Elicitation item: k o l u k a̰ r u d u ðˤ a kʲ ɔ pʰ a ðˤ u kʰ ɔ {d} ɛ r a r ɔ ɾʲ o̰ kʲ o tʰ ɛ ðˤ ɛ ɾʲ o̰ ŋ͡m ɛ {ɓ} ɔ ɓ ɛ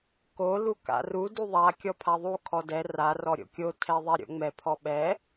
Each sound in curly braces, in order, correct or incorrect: correct, incorrect

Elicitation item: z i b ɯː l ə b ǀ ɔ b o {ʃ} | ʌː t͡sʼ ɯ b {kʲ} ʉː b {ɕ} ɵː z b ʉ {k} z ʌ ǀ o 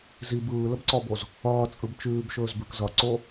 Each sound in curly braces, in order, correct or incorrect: incorrect, incorrect, incorrect, correct

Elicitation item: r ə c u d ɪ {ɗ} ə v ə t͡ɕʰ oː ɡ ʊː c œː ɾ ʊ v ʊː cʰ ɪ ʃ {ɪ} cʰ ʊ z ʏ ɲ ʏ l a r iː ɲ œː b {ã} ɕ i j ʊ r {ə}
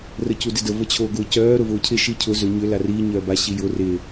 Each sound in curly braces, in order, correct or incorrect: incorrect, incorrect, incorrect, incorrect

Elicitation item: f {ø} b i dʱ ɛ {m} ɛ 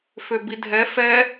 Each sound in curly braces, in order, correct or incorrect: correct, incorrect

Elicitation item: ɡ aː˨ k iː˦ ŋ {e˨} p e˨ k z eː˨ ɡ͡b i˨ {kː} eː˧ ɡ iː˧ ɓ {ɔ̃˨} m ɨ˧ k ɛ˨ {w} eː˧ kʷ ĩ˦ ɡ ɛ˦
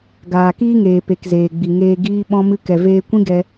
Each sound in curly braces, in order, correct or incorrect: incorrect, incorrect, incorrect, incorrect

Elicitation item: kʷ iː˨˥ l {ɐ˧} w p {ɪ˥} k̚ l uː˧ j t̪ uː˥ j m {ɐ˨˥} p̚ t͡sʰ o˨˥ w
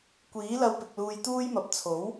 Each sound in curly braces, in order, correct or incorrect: correct, incorrect, correct

